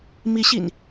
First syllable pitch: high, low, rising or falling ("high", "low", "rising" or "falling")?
rising